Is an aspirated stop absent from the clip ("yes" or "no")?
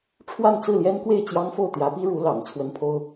no